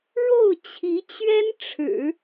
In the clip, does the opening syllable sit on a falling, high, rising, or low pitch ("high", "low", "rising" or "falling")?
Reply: falling